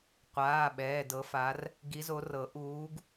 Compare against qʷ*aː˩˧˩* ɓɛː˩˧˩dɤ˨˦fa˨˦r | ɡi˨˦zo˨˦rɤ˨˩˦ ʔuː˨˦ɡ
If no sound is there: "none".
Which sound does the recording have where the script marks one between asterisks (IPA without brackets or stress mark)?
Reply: aː˩˧˩